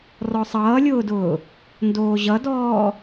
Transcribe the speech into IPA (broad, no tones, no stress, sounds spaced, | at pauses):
r ɔ sˤ ʌː lʲ ʊː d ʊː | n d oː ʑ ʌ d ɔː